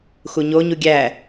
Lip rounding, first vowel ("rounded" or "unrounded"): rounded